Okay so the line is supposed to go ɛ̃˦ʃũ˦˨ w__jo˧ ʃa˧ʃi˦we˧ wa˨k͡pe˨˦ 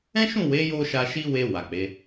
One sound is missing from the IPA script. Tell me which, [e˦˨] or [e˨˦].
e˨˦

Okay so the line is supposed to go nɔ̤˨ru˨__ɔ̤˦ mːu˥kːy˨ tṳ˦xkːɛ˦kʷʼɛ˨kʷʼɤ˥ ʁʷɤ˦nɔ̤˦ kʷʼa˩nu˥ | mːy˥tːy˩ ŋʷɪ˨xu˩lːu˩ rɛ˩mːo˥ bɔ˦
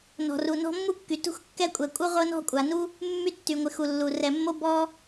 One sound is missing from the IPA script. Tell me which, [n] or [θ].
n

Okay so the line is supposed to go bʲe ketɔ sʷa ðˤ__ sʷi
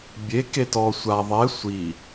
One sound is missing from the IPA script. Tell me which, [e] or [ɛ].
ɛ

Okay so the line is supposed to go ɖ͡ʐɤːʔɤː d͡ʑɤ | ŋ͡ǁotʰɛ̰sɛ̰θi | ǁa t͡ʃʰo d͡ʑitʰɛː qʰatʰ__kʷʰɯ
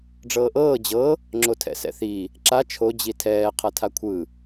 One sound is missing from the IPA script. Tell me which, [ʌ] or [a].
a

